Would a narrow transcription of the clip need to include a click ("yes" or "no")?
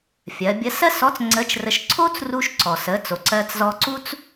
yes